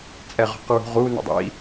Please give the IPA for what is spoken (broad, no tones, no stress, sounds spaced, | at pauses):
t͡sʼ ɛ ʁ ɔ̤ q ɹ ṳ ʁ u n ə̰ dˤ ḭ